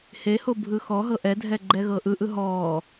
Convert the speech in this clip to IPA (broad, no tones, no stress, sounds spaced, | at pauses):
h e h o bʱ ɯ x ɔ ɦ ɤ ʔ ɛ dʱ ɛ ɡ͡ǃ ɛ ɣ ɤ ʔ ɯ ʔ ɯ ɦ ɔː